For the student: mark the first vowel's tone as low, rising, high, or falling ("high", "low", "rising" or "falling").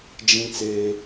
high